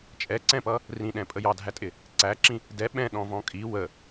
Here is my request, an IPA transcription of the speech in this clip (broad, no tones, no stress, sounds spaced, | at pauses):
t͡ʃʼ ɛ ǀ ɛ̃ p ʌ | r ĩ ɗ ɛ̃ pʼ ə j ɑ dʱ æ tʼ ɪ | ǀ æ ǁ ĩ | d ɛ ɓ ɛ̃ ɗ ɔ̃ v ɔ̃ kʼ i w ə